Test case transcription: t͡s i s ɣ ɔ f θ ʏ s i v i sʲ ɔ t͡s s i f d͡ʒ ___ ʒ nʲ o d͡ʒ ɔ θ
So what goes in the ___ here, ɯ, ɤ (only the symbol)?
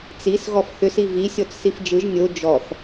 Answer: ɯ